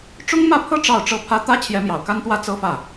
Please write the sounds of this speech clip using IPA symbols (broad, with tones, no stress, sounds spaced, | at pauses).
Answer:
ʈ͡ʂ ʊ˥ ŋ m ä˥˧ pʰ ɤ˥˧ ʈ͡ʂ ɑ˥˩ ʊ̯ ʈ͡ʂ ɤ˥ pʰ ä˥ t̪ ä˥ t͡ɕʰ j ɛ˧˥ m j ɑ˨˩ ʊ̯ k a˥ n t̪ w ä˥ t͡s ɤ˥ f ä˥˩